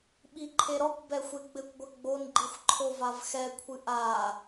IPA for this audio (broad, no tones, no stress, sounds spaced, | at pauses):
ɓ i ǃʰ e ɾ ɔ kʷ b ɛ xʷ e ɡ͡b ɘ kʷ ɡʷ ɐ ɡ͡b o n ɡ͡ǃ i xʷ ǃʰ o v a v x ɛ kʷʰ ɨ ʔ a